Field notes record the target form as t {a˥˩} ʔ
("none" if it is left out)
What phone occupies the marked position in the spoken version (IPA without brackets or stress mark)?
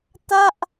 a˥˩